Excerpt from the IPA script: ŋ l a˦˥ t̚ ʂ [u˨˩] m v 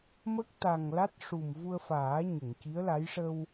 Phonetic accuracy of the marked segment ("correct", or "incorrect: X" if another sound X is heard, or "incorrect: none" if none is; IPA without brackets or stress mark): correct